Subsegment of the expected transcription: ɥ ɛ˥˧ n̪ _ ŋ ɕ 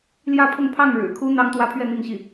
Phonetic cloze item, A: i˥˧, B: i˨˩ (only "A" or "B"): A